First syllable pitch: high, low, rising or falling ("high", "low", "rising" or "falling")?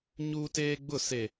high